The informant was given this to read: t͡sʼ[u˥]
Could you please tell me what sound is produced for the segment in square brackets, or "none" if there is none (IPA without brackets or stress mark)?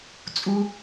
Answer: u˥